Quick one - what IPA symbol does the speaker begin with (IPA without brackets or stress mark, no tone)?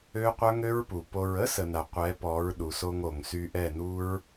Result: ø